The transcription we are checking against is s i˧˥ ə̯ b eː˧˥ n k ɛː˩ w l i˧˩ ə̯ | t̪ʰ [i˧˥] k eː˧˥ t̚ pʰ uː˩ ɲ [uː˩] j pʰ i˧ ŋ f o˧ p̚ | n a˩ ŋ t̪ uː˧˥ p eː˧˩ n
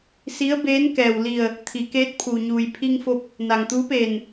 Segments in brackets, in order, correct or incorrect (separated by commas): incorrect, correct